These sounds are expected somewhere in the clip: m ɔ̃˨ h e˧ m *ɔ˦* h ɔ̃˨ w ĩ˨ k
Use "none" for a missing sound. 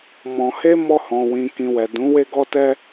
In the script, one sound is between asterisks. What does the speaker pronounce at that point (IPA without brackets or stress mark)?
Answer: ɔ˧